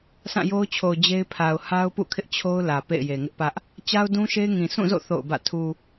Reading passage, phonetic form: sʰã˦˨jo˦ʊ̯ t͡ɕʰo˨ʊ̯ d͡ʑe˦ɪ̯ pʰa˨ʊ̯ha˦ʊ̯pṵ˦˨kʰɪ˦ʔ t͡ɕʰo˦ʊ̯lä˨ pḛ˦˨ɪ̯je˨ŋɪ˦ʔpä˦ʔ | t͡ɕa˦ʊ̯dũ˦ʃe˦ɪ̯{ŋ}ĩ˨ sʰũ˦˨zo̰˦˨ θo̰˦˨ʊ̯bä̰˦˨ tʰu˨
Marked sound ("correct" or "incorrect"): correct